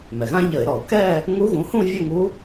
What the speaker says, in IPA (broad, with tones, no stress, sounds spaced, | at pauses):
m ɛ˩ ɣ ã˥ ʎ ə˧˩˧ ɪ̯ ɾ ɔ˧˩˧ ʊ̯ k ɛ˥˧ | ŋ u˧˥ ɣ ũ˩˥ h ũ˥˧ vʲ ə˥˧ ŋ u˧˥